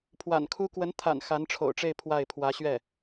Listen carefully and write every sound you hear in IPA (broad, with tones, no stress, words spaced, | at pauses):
pʰwa̰˨˩nkʰu˥ kwə˧˥nt̪ʰa̰˨˩n xa˧˥nʈ͡ʂʰo̰˨˩ʊ̯ʈ͡ʂe˥˧ɪ̯ pʰwa˥˩ɪ̯ pʰwä˧˥ɕɥɛ˥˩